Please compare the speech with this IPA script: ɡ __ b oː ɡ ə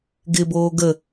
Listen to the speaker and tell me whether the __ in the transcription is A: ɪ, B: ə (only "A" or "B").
A